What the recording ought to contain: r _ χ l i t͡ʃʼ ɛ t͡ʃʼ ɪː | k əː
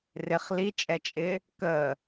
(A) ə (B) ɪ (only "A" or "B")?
B